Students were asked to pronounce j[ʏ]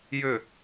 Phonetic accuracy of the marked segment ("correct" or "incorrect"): correct